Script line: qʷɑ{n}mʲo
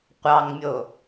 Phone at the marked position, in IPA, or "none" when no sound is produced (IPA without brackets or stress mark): ŋ